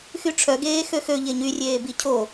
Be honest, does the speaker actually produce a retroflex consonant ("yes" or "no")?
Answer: yes